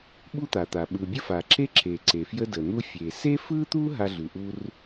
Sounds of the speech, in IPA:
ɓ u˥ t̪ a˩ t̪ a˩ ɓ ɯ˩ bʲ ə˥ f a˩ ǁ e˥ ǁ e˩ ǀ e˩ f j ə˥ d ə˩ n̪ u˥ fʲ e˩ s e˥ f ɯ˥ t̪ u˥ ɦ a˥ ɮ ʉ˩ ʔ u˥ r

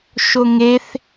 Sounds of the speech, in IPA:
ʃ o ŋ e θ

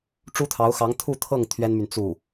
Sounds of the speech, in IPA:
ʈ͡ʂ u˥ t̪ʰ ɑ˧˥ ʊ̯ x ɑ˧˥ ŋ t̪ʰ u˥˧ t̪ʰ ɤ˥˩ ŋ t̪ʰ ɥ ɛ˥ n m y˨ n t͡s u˥˩

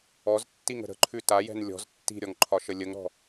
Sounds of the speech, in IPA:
ɔ z tː i ŋ ə̤ ɾ ə̤ ǃʰ ʉ t a j ɛ̤ n lʲ ɔ̤ z tː i̤ ɾʲ ɔ ŋ ǃʰ ɒ ʃ ə lʲ ə ŋ ɾ ɔ̤

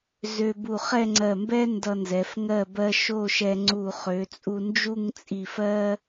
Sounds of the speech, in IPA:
z ø˧ b u˧˩ χ ɛ˥˧ ŋ͡ǀ ɜ˧˩ m b ɛ˥ n d ʌ˧ n z ɛ˩˧ f ŋ ɜ˧˩ b ɜ˧ ʃ o˥˧ ʃ ɛ˧ ŋ͡ǀ u˧˩ χ ø˩˧ t͡sʼ u˧ n d͡ʒ u˥˧ ŋ t͡sʼ i˧˩ f ɜ˥

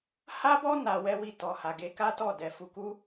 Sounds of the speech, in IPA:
h a˦ b ɔ˦ n a˧ w ɛ˦ w i˦˨ t ɔ˨ h a˨ ɡ e˧ k a˦ t ɔ˦˨ d ɛ˧ f u˧ k u˦

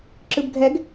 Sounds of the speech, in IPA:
ǁ ɯ b ɡʱ ɛ ɡ

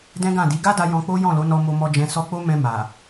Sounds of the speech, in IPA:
d ɛ̃˦ ɡ ã˦˨ d i˨˦ ɡ a˦ d a˧ j ɔ̃˧ k͡p o˦ j ɔ̃˦˨ l o˨˦ n ɔ˧ m o˧ m ɔ˧ d͡ʒ ɛ̃˧ s ɔ˧ k͡p o˦ m ɛ̃˧ m a˨

